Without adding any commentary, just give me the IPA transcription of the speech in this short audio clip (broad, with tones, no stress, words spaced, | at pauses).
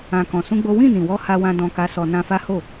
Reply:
ã˧ kɔ̃˧sũ˦ɡ͡bo˦ wĩ˦˨nĩ˨wɔ˧ ha˧wã˧ dɔ̃˧ka˧sɔ˧ nã˧fa˦ ho˦˨